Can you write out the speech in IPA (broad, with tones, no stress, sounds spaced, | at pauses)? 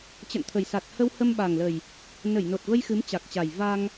t͡ɕ ə̰˧˨ n t̪ʰ ə˨˩ j s a˨˩ t̚ h ə˧ w h ə˧ m ɓ a˨˩ ŋ l ə˨˩ j | n ə˧˩ j n o˨˩ t̚ v ə˧ j x ɨ˨˦ m t͡ɕ a˨˩ k̚ t͡ɕ a˨˩ j v a˧ ŋ